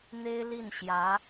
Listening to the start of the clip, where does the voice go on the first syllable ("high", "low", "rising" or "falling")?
high